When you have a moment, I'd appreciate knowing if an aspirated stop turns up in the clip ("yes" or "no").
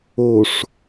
no